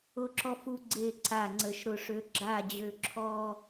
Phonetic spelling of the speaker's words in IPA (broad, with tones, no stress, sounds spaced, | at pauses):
ʊ˧˩ ǁ ɔ˧ f u˧ ɡ͡ǀ e˧˩ ǀ a˧˩ ŋ͡ǀ ə˧˩ ʃ ɾ ʊ˧ ʂ ø˧ ɡ͡ǁ a˧˩ d͡ʑ ø˧˩ ǁʰ ɔ˧